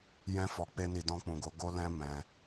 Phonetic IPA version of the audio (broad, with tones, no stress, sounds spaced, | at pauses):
j ɛ̃˧ f ɔ˨ k͡p e˧ n i˨ d ɔ̃˧ k͡p ũ˨ ɡ o˨˦ ɡ o˦ l ɛ̃˦ m ɛ̃˧